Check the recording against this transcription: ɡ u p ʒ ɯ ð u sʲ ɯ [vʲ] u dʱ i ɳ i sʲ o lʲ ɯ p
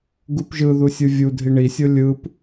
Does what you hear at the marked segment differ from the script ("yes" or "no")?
no